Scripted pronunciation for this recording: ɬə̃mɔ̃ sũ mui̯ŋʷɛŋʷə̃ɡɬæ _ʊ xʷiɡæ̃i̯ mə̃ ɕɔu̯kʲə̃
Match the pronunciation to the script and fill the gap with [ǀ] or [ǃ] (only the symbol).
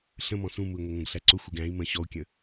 ǀ